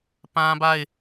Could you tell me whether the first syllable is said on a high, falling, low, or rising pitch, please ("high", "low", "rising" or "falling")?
high